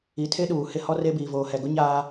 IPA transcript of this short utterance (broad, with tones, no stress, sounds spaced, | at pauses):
i˨ tʰ e˦ ɗ uː˨ h ɪ˦ h ɔ˦ r e˦ b iː˨ v oː˨ h ɛ˨ ɡ ʊ˦ ɲ aː˦